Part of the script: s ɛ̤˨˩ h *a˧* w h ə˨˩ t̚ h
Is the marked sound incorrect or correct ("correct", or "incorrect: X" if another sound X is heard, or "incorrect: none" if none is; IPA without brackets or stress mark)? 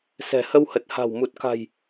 incorrect: ə˧